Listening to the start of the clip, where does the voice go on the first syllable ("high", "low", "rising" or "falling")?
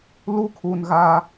high